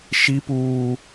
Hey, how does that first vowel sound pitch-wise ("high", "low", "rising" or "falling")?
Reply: high